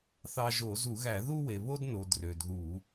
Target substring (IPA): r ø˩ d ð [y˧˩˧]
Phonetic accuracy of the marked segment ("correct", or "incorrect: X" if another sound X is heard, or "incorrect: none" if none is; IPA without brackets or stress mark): incorrect: u˧˩˧